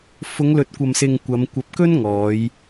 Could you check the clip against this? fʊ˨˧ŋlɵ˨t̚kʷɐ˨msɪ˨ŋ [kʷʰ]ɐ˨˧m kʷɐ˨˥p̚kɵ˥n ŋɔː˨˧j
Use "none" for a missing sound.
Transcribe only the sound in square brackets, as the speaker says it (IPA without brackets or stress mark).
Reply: kʷ